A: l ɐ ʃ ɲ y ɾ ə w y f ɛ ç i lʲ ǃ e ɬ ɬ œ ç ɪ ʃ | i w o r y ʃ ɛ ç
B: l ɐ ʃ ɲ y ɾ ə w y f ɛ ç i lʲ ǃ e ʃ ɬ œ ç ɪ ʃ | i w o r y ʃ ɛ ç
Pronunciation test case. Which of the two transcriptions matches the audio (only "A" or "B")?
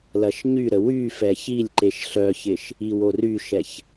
B